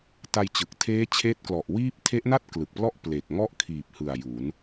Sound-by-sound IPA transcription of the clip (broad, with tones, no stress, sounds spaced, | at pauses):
t a˧ j t͡ɕ ɯ˨˩ k̚ tʰ eː˦˥ t͡ɕʰ eː˦˥ t̚ k l ɔ˨˩ ʔ w iː˥˩ p̚ tʰ e˦˥ ʔ n a˥˩ t̚ k l ɯ˨˩ k̚ p l ɔ˥˩ ʔ p l e˨˩ k̚ ŋ ɔ˥˩ ʔ kʰ iː˨˩ p̚ h ɯ˨˩ a̯ j u˩˦ n